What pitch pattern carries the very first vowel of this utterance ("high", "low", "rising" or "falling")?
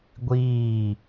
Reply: falling